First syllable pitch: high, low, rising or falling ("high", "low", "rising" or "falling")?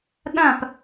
falling